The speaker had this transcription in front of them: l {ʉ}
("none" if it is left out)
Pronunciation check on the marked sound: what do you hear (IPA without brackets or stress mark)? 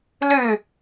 ʉ